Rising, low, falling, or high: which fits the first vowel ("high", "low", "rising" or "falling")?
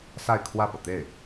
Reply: falling